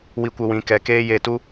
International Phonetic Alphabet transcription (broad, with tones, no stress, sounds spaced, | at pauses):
w i˧ kʷ ə˧ w ĩ˧ k ɛ˧ k eː˦ j e˦˨ t u˦